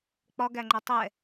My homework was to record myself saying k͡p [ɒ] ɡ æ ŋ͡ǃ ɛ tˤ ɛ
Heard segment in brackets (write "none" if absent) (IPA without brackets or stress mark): ɒ